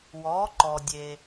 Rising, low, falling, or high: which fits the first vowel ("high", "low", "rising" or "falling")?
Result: rising